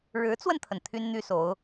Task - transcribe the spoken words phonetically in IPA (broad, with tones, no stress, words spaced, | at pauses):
ɻɻ̩˧˥t͡swə˧nt̪ʰə˩n t̪ʰy˥nn̪y˥so˧˥ʊ̯